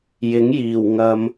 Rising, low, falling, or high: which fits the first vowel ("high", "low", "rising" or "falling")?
rising